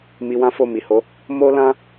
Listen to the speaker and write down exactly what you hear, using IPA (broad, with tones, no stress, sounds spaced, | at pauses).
m i˧ w ã˦ f o˦˨ m i˨ h o˨˦ | m o˦ l ã˦